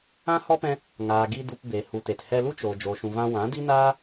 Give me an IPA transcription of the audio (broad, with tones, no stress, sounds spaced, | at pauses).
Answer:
ã˦ h ɔ˦ p ɛ̃˧ | ŋ aː˨ ɡ i˧ d u˧ p b e˨ h u˨ t e˨ t h ɛ˧ l u˦ t͡ʃ o˨ d͡ʒ o˨ ʃ ũ˨ v ã˧ w ã˨˦ d i˦ n aː˦